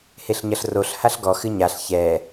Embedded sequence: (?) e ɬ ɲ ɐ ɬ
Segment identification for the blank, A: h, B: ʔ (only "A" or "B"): A